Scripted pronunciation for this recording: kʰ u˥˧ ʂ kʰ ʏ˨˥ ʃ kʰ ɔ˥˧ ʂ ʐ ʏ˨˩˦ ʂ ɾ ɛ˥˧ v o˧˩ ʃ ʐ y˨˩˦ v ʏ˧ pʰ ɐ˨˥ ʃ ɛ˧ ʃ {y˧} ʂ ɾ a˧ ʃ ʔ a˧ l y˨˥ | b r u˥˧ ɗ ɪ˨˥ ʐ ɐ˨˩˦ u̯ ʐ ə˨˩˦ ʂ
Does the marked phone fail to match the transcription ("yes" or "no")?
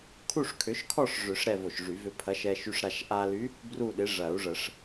no